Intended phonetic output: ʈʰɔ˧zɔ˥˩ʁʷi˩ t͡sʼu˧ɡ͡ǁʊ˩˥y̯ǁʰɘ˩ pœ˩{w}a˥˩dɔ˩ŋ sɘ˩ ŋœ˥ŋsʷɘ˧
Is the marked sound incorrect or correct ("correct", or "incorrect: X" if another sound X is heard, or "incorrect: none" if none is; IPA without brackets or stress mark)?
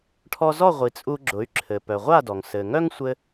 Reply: incorrect: ʁʷ